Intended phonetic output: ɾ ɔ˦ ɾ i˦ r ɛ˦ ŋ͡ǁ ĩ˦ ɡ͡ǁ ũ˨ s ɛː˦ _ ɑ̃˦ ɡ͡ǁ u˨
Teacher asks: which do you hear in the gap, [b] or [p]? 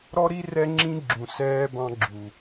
b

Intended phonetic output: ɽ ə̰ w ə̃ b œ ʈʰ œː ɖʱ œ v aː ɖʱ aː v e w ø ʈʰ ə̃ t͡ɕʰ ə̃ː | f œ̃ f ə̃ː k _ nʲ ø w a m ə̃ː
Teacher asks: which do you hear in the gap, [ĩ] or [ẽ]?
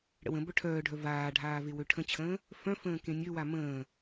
ẽ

